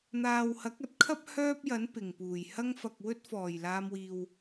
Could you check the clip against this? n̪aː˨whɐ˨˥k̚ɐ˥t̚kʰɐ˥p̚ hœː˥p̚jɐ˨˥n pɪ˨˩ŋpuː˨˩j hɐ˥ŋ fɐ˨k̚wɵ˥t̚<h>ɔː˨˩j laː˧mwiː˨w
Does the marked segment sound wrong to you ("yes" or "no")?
yes